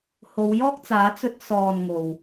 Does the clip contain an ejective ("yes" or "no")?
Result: no